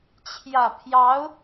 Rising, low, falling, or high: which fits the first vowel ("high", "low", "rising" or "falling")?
low